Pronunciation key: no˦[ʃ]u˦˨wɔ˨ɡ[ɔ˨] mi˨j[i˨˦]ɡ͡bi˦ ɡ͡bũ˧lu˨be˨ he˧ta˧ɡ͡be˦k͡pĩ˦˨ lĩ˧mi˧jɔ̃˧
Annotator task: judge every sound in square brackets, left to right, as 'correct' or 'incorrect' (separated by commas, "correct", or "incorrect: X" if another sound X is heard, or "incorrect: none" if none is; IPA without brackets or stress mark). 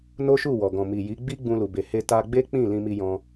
correct, incorrect: ɔ̃˨, correct